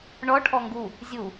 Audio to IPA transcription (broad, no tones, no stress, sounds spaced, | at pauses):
ɳ ɔ ʈʰ ɔ ŋ ɡ u | zʲ u